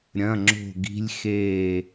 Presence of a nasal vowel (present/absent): present